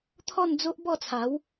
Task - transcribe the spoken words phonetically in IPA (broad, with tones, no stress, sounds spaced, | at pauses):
t̪ʰ ɔ˥˧ n d͡z o˦ ʔ b ɔ˥˧ t͡sʰ a˨˦ w